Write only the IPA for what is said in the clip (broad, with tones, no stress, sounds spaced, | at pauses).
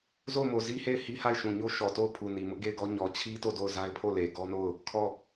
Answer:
z o˦˨ ʊ̯ m o˨ z i˦ h e˦˨ ɪ̯ h i˦ h a˦˨ ɪ̯ ʃ ũ˨ ɲ o˦ ʃ ɔ˨ t o˦˨ ʊ̯ pʰ u˨ n i˨ m ʊ˦ ʔ ɡ e˦˨ ɪ̯ ɡ ɔ˦ ɲ ɔ˨ t͡ɕʰ i˦ t o˦˨ d o˦˨ ʊ̯ z a˦ ɪ̯ pʰ o˦˨ l e˨ ɡ ɔ˦ n o˦˨ ʊ̯ | kʰ ɔ˦˨